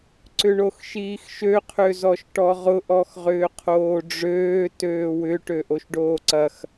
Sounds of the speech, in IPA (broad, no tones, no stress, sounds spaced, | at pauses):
ǀ ʏ ɳ o x ʃ iː x ʃ ø qʰ ø z ɔ ʃ ʈ ɔ ʁ ʊ ʔ ɔ x ʁ ʏː qʰ oː ɖ͡ʐ øː t øː w ʏ ʈ ø ʔ o ʃ ɖ oː ǀ ɐ x